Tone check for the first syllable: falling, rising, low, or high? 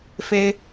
high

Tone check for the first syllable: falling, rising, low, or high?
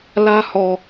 high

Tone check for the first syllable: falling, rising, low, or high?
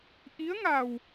rising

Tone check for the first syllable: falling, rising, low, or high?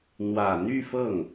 low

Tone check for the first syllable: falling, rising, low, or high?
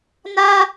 high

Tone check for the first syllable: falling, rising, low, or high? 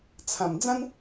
low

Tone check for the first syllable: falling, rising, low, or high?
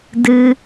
low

